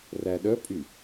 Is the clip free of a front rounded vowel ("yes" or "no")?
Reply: no